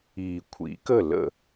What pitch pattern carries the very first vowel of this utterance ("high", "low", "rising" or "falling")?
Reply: low